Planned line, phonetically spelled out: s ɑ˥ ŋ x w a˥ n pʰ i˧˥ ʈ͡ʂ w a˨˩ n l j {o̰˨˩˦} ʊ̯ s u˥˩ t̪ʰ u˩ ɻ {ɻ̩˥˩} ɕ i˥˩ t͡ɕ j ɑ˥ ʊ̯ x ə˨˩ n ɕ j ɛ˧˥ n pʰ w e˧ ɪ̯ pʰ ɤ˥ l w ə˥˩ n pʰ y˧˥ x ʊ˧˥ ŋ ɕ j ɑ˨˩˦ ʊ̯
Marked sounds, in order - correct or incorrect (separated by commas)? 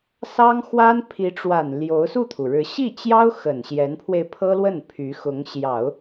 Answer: incorrect, incorrect